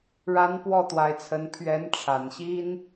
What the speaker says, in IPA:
ɻ a˧˥ n p w ɔ˥˩ t̪ w a˧˥ ɪ̯ t͡sʰ ə˧˥ n pʰ ɥ ɛ˧˥ n ʈ͡ʂʰ a˨˩ n ɕ i˥ n

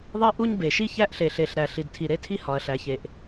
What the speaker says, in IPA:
ðˤ i˥ ʔ u˥ ɲ b e˩ ʃ i˥ ç æ˥ ʔ ɬ e˩ ɬ e˩ ɬ ɾ æ˩ ɬ i˩ d tʰ i˩ ɾ e˥ tʰ i˥ h ɒ˩ ɐ̯ ɬ æ˩ ç e˩ ʔ

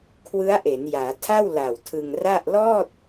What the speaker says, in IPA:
kʰ w ɯ˦˥ a̯ ʔ e˩˦ n j aː˩˦ tʰ a˥˩ w l a˨˩ w tʰ ɯ˧ ŋ r a˥˩ ʔ l ɔː˥˩ t̚

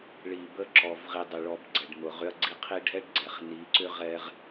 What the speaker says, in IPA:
ɭ i˨ b ə˦ ǁ ɔ˨ v ʁ i˨ dˤ ʏ˨ ɭ ɔ˨ b ɡ͡ǀ ɛ˨ ɖ m ʊ˨ ʁ ʏ˦ ɐ̯ ɡ͡ǀ i˦ qʰ i˦ ɖʱ ɛ˦ ɖ ɡ͡ǀ ɛ˨ χ n i˨˦ ǀ ʏ˦ ʁ ɛ˦ ʁ

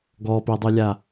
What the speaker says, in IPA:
ɡ ɔ p i dˤ u lʲ a

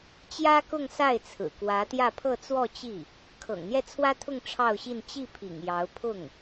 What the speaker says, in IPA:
t͡ɕ j ä˥ k ʊ˥˧ ŋ s a˥˩ ɪ̯ t͡sʰ ɹ̩˨˩ k w ä˧˥ t̪ j ä˥˧ pʰ ɤ˥˧ t͡s w ɔ˥˧ t͡ɕ i˥˩ | kʰ ɤ̰˨˩ ŋ n̪ j ɛ˥˩ t͡sʰ w ä˥ t̪ʰ ʊ˥˧ ŋ ʈ͡ʂʰ ɑ˥˧ ʊ̯ ɕ i˥˧ n t͡ɕ i˥˩ pʰ ḭ˨˩ ŋ j ɑ˧˥ ʊ̯ pʰ ʊ˥˩ ŋ

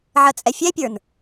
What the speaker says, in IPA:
ʕ ə t͡sʼ ɛ fʲ ɛ pʲ ə˞ n

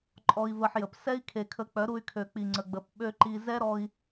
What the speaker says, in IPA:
ǃʼ ɔ˧ i̯ v ə˧ ħ j ə˨ p s ɛ˦ i̯ kʰ e˨ kʰ ə˨˦ k͡p œ˨˦ ɾ u˧ y̯ kʰ ø˨ k͡p i˨ ŋ͡ǀ ə˨ ɡ͡b ə˨ p ɓ ø˦ ǃ i˧ z ɛ˦ ɾ ɔ˧ i̯

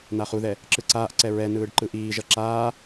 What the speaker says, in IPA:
n a χ u ð ɛ | ǁ ɯ ǀ aː ʔ ǀ ɛ ɹ ɛ n ɯː ɖ ǃ ɯ ʔ iː ʒ ʌ ǁ aː

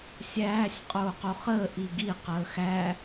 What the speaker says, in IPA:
sʲ æː sʲ qʼ oː q o χ əː ʔ i ɡ i q əː x æ

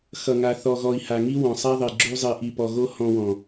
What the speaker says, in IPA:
x ʌ˨ ŋ a˨ θ ɔ˨ ɣ ɔ˨ i̯ h a˨ ŋ i˦ w ɔ̃˨ sˤ a˦ ðˤ i˨ ɡ͡ǁ u˧ zˤ i˨ ʔ i˨ p ɔ˨ ɣ o˧ h ɔ̃˧ w ɔ̃˨

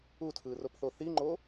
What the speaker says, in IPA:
u tʰ ɯː r o p θ o θ i ŋ͡ǃ oː

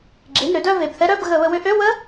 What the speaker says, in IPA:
ɡ͡ǁ e˩˧˩ n ɾ ʏ˨˦ d œ˦˨ v e˩˧˩ b θ ɛ˦˥ ɾ œ˧˥˧ b ɣ ə˧˩˧ β ə˧˩˧ w ʏ˧˥˧ ʔ ø˧˥˧ w ə˦˥

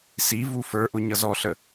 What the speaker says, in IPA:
s i v u f ə˞ ʔ ʊ ɲ ʌ z ɔ ɬ ə

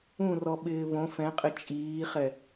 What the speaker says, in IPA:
ũ r ɔ ɓ ɪː β õ f ɛ̃ qʼ ɪ t͡ʃʼ iː χ ɛ

